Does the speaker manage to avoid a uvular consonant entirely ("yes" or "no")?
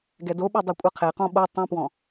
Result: no